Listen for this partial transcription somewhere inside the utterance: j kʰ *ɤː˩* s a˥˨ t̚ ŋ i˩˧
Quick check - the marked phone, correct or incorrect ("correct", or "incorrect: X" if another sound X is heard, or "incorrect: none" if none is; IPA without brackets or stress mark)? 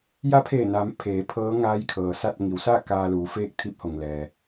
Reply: correct